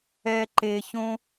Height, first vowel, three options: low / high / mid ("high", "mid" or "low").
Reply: mid